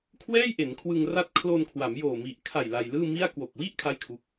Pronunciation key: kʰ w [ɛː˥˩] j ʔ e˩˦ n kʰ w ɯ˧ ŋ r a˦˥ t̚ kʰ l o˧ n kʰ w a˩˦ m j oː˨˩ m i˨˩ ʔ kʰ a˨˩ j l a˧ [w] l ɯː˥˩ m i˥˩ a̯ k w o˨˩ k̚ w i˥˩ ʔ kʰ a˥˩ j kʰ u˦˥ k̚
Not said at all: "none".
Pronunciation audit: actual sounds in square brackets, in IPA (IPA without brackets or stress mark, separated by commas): ɛː˥˩, j